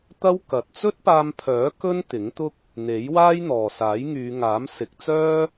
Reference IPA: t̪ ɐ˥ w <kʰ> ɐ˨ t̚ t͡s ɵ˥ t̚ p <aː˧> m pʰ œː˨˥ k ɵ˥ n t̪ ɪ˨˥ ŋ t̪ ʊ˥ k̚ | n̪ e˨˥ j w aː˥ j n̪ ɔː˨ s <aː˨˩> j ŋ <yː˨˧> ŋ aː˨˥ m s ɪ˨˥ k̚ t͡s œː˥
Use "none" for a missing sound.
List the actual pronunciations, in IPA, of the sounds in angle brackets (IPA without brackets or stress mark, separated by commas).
k, aː˧, aː˨˥, yː˨˧